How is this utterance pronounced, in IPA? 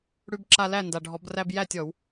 ɽ ʉ˦ b ǁ a˦ l æ˥˨ n d a˨ ɖʱ ɔ˨˩˦ b r æ˦ b j æ˥˨ tʲ ɔ˨˩˦ w

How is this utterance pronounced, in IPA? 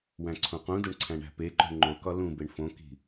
w æ̃ ǀʰ õ q ũ d o ɳ ǀʰ æ̃ ɳ æ̤ p e ǃ o̤ ɳ ŋ͡ǃ o k ɒ l ũ b e ɳ f õ k i̤

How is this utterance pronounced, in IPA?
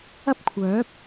ɐ˥ p̚ kʷʰ œː˨˥ p̚

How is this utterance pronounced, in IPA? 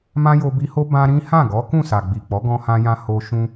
m ã˦ j o˧ b i˧ h o˦ b ã˦ ɾ ĩ˦ h ã˦˨ ɡ ɔ˨˦ k ũ˦˨ s a˨ ɡ͡b i˨ k͡p ɔ˨˦ ɡ ɔ̃˧ h ã˧ j ã˧ h o˧ ʃ ũ˧

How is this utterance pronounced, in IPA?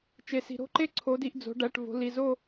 t͡ʃ e˩ s i̤˩ ɾ o̤˥˧ ǃ e˥˧ ǀʰ o˩˧ d i˩˧ ʔ d͡z o̤˩˧ ɖ æ˩˧˩ ʈ v o̤˩˧ l i˩˧˩ z o˥˧

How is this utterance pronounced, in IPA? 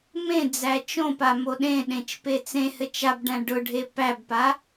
m ẽ d͡z æ t͡ʃ õ p a m o ɗ ẽ ɗ ẽ t͡ʃ p e t͡s ẽ h ɘ t͡ʃ a b ɖ æ̃ ɖ ʊ ɖʱ e p æ b p a

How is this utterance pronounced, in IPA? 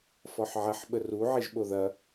f ɔ ħ ʕ ɐ ħ ɓ ə r u ʕ i ʒ ɓ o ð ɐ

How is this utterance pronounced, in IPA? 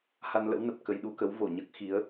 h a˧ n l ə̰˧˥ w n ə˨˩ p̚ k ə˧ j ɗ u˧ k ə˨˦ w v o˧˩ ɲ əː˦˥ k̚ x i˨˦ ə̯

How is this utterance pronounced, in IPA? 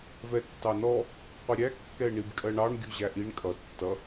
v ɛ tː ɑ n ɔ | qʷ ɪ ɾʲ æ kː ɛ ɪ̯ ɳ i b kʼ ɜ ɳ ɑ ɳ ɡʲ u ʑ æ ʔ i ɳ kʼ ʌ tː ʌ

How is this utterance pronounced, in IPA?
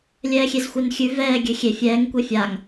lʲ ɛː xʲ e z xʷ ɛ n xʲ ʉ v ɛː ɡʲ ø xʲ e fʲ ɛː ŋ kʷ e fʲ a ŋ

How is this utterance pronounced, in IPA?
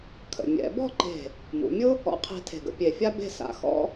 kʰ ə̰˩˧ mʲ ɛ̰˩˧ b ɔ̤˥˧ ǃ e̤˧˩ | m ṵ˩˧ mʲ ʊ˥ | ɔ̰˧˩ qʰ e̤˧ tʰ e̤˧˩ ɡ ə̰˧ pʲ e˧˩ fʲ a˥ b e̤˥˧ s a̰˧ x ɔ̰˥

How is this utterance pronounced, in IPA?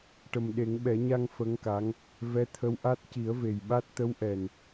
ʈ ə˨˩ m ɗ e˨˩˦ ŋ ɓ ɛ˨˩˦ ɲ a˧ ŋ f ə˧˥ ŋ k a˧˥ ŋ | v ɛ˧˥ t̪ʰ ə˧˥ w ʔ a˦˥ t̚ c i˨˩˦ ə̯ v e˨˩ j ɓ a˦˥ t̚ t̪ ə˧˥ w ʔ ɛ˨˩ n

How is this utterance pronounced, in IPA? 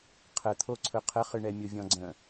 qʰ ə t̪ʰ o ǀʰ ɵ qʰ ə χ ɨ ɳ ɛ mʲ o vʲ ɔ̃ ɡ͡ǀ ə̃

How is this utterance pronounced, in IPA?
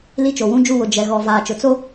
l i˦ t͡ʃ o˨ w ũ˦ d͡ʒ u˦˨ w ʊ˨ d͡ʒ ɛ˨ ɣ ɔ˨ v aː˨ t͡ʃ ʊ˨ t͡s o˦

